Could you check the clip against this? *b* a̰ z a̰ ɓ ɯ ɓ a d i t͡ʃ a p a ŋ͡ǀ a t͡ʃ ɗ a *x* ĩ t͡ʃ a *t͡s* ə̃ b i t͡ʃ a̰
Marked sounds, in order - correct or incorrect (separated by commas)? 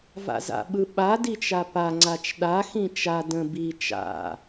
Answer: incorrect, correct, incorrect